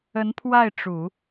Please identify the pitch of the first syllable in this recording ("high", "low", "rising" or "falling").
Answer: rising